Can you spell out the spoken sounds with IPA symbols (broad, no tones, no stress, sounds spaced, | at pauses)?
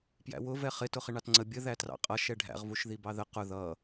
p j æ̰ w ʊ v ɛ χ ɪ t ʊ χ ɪ ɳ ɑ t ŋ͡ǀ ə bʲ ə ð æ t r ɑ̰ qʼ ʌ ʃ ɛ ɖʱ æ̰ ʁ v u ʃ ð i b ɑ ð ə q ʊ ð ʌ